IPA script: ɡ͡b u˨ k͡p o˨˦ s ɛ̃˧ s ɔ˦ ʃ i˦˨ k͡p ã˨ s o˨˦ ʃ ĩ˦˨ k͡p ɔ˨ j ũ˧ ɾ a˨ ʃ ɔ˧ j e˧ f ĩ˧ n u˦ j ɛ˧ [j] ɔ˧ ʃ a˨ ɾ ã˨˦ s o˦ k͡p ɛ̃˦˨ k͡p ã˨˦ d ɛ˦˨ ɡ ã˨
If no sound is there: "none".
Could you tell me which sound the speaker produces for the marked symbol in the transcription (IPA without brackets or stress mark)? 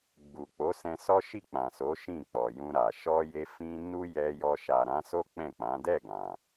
j